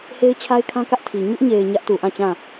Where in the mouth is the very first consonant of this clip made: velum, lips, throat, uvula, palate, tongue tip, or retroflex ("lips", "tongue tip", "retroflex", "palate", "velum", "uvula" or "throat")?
throat